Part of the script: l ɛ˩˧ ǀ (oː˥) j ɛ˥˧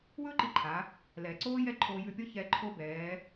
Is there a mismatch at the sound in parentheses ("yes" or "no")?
no